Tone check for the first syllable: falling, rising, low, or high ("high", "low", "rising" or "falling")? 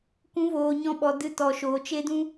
rising